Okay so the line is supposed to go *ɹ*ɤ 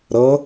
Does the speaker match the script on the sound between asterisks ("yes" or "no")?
no